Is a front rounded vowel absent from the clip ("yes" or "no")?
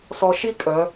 no